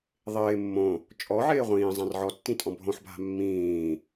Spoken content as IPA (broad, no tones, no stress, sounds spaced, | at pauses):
ðˤ ɪː mː õ | t͡ʃʼ ɔ ʕ ɪː ʁʷ ĩː zˤ ã r ʕ ɔ tː ĩ tʼ ɔ̃ bʱ õ ħ bʱ a̤ mː ĩː